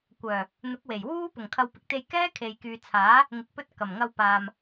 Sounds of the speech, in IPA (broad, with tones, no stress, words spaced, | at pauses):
kʷœː˨˩ | n̪ʊ˨˥k̚we˨˩jwuː˥ pʊ˨˩ŋkʰɐ˨˧wpɪ˨k̚t̪e˧j kɛː˥kʰe˨jkyː˨t͡sʰaː˨˥ | ŋɪ˨k̚pɵ˧t̚ kɐ˨˩mŋɐ˧wpaː˨m